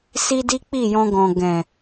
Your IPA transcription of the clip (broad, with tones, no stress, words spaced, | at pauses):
si˦di˦k͡pi˦˨ jɔ̃˧ ɡɔ̃˨ɡɛ̃˨